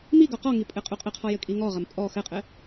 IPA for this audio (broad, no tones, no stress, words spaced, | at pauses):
mi ɡɔqɔŋi pʼɘqʼuqʼɘqʰɔ jɘkʼiŋɔʁɐm pʼɔ xɘqʼɘ